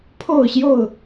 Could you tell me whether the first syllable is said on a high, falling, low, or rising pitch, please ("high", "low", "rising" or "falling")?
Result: falling